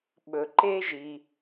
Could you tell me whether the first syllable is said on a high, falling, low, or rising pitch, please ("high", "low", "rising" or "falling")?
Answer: low